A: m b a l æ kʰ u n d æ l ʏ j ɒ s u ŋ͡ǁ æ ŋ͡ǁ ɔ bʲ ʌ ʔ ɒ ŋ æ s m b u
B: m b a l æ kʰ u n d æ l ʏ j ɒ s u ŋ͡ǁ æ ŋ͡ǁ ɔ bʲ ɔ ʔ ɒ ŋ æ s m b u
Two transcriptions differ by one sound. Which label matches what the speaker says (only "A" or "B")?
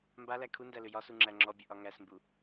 A